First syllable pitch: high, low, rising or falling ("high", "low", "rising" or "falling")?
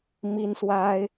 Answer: high